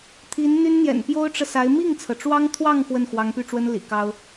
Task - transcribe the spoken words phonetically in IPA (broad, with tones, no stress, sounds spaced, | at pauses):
t̪ʰ i˧˥ n n̪ y˥ n n̪ j ɛ̰˨˩ n p j o˥ ʊ̯ ʈ͡ʂ ɤ˨ s a˧˥ ɪ̯ m i˥˩ ŋ t͡sʰ ɤ˩ ʈ͡ʂ w ɑ˥ ŋ t̪ʰ w ɑ˥˧ ŋ x w ə˥˩ n x w ɑ˧˥ ŋ p y˥˩ ʈ͡ʂ w ə˥ n l ḭ˨˩ k ɑ˥ ʊ̯